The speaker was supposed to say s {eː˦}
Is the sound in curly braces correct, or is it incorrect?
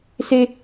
incorrect